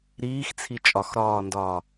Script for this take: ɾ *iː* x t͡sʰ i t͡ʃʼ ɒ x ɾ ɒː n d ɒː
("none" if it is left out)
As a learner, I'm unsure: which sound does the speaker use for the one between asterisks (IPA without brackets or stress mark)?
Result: iː